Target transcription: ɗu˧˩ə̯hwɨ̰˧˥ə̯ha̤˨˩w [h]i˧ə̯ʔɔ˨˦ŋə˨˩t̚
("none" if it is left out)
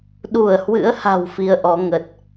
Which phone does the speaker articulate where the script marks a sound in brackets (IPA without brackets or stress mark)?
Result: f